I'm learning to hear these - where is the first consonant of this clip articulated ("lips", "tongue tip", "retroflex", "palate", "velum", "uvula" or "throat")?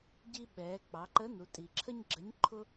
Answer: palate